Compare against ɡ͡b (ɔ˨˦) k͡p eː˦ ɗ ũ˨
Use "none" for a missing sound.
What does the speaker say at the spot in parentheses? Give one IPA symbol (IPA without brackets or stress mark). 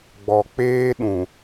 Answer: ɔ˨